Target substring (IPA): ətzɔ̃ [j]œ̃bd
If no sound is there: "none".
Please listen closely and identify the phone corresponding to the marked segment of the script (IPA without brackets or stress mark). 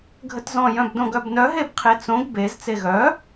j